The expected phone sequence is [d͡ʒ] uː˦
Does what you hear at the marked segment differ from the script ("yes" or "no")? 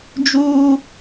no